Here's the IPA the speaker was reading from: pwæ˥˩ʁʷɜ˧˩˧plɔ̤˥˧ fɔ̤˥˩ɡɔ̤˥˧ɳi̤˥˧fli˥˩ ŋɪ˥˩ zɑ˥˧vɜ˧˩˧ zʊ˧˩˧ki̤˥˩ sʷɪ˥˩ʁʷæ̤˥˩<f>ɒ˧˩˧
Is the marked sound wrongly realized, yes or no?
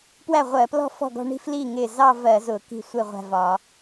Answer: yes